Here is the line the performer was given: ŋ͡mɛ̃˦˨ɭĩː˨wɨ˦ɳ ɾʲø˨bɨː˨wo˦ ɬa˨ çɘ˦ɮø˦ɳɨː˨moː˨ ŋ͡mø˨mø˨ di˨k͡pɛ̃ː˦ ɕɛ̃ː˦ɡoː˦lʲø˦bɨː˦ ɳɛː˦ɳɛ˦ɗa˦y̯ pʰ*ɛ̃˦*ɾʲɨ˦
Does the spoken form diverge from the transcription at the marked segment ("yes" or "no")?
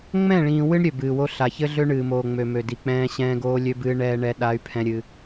no